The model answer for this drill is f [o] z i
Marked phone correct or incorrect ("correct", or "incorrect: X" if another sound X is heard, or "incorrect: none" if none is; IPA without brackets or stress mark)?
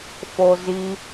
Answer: correct